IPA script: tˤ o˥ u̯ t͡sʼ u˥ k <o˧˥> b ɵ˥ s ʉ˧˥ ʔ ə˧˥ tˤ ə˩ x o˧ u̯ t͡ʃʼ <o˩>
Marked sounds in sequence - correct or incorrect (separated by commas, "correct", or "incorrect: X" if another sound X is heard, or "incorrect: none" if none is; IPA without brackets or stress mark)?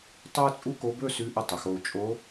correct, incorrect: o˧˥